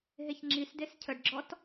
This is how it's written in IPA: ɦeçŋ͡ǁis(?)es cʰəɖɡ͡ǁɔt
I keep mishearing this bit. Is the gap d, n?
d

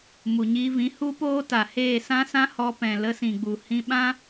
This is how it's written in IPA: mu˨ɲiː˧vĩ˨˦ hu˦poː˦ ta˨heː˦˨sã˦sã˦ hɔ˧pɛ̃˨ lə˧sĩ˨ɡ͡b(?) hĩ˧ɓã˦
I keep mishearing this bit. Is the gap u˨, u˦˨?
u˨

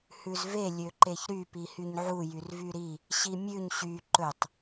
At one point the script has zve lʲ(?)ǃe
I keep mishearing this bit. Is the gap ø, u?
ø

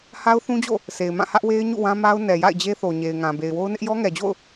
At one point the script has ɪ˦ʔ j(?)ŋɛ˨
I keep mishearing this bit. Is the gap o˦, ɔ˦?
ɔ˦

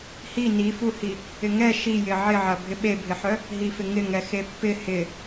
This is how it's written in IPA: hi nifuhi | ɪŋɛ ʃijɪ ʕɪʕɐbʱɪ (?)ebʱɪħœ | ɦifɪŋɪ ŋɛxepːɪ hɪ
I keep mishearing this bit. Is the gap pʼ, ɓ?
ɓ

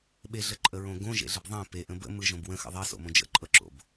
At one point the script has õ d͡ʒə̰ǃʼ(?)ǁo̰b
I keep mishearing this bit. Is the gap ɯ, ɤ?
ɤ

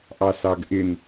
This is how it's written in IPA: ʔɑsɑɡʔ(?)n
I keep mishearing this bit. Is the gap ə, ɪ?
ɪ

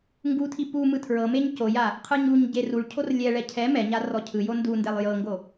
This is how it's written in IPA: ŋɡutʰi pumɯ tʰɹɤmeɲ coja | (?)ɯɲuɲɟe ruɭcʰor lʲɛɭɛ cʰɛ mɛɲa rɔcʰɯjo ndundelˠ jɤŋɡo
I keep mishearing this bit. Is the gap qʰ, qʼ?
qʰ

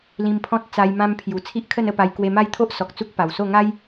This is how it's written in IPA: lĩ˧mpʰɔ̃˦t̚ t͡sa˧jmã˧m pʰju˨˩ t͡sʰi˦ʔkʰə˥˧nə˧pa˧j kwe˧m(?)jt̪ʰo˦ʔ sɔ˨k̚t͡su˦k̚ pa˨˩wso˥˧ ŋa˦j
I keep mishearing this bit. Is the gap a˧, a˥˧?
a˥˧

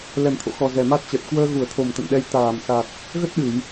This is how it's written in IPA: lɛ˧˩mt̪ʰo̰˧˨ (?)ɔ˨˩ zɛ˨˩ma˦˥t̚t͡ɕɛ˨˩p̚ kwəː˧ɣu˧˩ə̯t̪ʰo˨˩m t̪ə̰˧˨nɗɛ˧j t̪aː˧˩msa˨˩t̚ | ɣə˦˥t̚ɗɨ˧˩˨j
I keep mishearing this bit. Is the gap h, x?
x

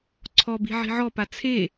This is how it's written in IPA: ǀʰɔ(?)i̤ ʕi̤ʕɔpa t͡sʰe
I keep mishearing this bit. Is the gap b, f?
b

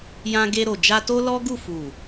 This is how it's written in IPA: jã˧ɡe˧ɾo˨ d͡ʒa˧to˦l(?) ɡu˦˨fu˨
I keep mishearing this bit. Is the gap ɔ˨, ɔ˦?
ɔ˦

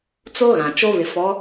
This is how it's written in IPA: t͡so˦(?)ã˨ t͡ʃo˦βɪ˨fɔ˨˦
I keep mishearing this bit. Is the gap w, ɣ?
ɣ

